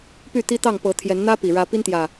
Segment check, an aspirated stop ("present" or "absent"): present